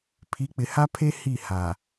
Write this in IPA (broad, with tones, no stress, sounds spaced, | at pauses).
pʰ i˨˦ k͡p ɪ˨ h a˦ pʰ e˦ h i˦˨ h a˨